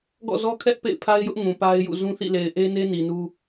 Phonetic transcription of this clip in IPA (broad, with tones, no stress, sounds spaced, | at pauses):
ɡ ɔ̰˦˨ z ɔ˦ kʰ ɛ˦ ʔ p ḛ˦˨ ɪ̯ pʰ a˦ ɪ̯ j ʊ˦ ʔ ŋ ũ˨ p a˦ ɪ̯ j ṵ˦˨ z ũ˦ θ ḭ˦˨ l e˨ ɪ̯ ʔ e˦ n e˦ n i˨ n u˦